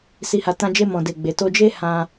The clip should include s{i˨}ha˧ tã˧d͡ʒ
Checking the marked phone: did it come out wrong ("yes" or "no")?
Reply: yes